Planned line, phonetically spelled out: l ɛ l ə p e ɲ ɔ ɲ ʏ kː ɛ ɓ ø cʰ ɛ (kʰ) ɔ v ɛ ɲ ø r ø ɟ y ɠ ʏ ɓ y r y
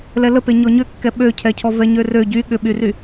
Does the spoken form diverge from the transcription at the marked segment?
yes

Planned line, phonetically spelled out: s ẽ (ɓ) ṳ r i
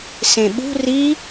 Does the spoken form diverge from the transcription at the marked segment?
no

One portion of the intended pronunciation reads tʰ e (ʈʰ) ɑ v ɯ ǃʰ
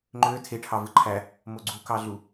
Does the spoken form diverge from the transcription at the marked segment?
no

